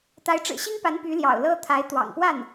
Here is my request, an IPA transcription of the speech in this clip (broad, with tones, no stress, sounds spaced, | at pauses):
t̪ a˧˥ ɪ̯ ʈ͡ʂ ɻ̩˨˩ ɕ i˥ ŋ p a˧˥ n p y˧˥ l j ɑ̰˨˩ ʊ̯ l ɤ˥ t̪ʰ a˧˥ ɪ̯ t̪ w ɑ̰˨˩ ŋ p w a˥˩ n